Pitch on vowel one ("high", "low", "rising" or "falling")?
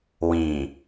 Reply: low